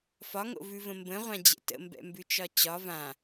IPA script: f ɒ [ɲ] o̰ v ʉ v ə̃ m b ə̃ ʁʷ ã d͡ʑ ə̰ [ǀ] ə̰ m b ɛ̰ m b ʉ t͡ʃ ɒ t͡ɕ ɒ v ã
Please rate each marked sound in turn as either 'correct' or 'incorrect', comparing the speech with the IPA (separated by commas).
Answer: incorrect, incorrect